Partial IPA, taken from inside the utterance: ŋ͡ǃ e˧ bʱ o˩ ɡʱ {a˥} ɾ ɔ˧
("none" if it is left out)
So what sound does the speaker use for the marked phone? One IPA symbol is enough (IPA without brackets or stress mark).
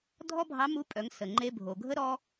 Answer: ə˥